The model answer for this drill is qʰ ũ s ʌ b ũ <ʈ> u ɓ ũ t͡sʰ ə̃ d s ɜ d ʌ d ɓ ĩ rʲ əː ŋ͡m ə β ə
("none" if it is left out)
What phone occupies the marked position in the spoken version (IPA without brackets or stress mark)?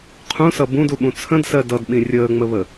d